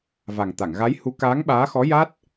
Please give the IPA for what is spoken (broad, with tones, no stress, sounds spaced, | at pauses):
v a˨˩ ŋ t̪ a˨˩˨ ŋ ɣ a˧˥ j h u˧˥ k aː˧˥ ŋ ɓ aː˧˥ x ɔ˧˥ j a˦˥ t̚